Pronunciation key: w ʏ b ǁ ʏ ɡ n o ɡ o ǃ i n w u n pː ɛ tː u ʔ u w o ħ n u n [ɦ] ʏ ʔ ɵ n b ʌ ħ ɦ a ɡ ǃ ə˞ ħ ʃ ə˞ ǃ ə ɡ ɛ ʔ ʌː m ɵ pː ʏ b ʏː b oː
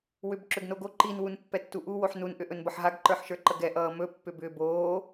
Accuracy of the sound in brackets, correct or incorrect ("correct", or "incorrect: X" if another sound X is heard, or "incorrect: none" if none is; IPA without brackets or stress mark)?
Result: incorrect: ʔ